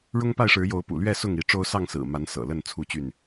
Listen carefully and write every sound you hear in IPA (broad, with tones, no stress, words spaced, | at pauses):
ɻʊ˦ŋpa˥˨ɪ̯ʂɻ̩˨˦ jo˨˦ʊ̯pṵ˨˩lɥɛ˥˨ sʊ˥˨ŋi˨˦ ʈ͡ʂo˦ʊ̯sɑ˥˨ŋsɹ̩˨˩ma˨˦n sɤ̰˨˩ lə˥˨n t͡sʰu˦t͡ɕy˥˨n